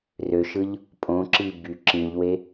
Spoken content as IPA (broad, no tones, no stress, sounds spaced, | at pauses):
r ø ʃ ɯ ʎ | pʼ õ ǁ i b y ǁ ĩ ʎ w e